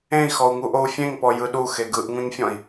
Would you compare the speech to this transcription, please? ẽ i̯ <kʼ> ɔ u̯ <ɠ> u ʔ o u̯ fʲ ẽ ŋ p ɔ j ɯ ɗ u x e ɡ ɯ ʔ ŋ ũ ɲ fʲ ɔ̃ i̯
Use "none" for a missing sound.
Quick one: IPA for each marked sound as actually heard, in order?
x, ŋ

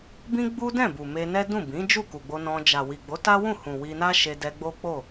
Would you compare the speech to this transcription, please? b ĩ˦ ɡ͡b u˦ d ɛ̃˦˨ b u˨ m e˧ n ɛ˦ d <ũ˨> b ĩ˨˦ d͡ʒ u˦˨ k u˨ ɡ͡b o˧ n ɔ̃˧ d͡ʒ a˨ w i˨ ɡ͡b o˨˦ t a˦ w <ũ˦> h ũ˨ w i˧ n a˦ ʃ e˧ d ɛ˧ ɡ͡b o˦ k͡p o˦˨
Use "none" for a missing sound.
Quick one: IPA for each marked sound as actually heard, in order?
ũ˦˨, ũ˦˨

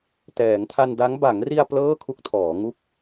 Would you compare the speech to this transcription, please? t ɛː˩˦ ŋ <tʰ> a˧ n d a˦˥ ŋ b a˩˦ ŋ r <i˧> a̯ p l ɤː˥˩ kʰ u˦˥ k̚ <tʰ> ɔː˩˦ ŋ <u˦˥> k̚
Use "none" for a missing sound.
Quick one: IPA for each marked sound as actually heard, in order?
tʰ, i˧, tʰ, u˥˩

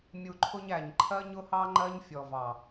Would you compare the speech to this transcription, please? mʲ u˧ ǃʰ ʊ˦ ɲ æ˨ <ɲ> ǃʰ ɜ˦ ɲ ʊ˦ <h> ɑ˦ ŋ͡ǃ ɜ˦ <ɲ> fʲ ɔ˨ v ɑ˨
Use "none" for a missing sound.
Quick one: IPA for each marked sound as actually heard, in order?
ɲ, h, ɲ

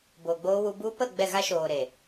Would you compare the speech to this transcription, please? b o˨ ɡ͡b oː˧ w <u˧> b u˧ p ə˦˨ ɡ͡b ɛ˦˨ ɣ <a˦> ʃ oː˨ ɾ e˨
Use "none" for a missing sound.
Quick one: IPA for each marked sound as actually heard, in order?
u˧, a˦

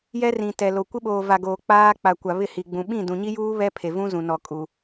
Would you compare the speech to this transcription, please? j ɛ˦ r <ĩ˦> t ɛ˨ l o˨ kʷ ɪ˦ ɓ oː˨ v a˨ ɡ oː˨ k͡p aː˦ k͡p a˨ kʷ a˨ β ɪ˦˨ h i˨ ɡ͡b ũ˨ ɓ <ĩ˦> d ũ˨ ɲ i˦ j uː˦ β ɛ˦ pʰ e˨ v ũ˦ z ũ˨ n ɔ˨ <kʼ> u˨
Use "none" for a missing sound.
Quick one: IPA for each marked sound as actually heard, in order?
ĩ˨, ĩ˦˨, kʼ

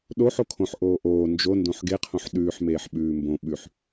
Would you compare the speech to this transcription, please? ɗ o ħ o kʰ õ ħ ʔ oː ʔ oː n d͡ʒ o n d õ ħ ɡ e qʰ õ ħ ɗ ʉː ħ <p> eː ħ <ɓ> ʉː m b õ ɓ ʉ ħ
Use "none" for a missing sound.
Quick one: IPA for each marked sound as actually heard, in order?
m, ɓ

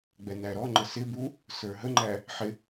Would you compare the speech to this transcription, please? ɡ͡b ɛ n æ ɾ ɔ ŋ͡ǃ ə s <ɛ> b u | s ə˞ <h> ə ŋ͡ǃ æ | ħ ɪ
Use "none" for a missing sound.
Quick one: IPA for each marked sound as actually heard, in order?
ɪ, ɦ

